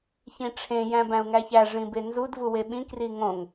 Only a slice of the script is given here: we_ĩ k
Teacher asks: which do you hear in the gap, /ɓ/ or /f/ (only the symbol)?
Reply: ɓ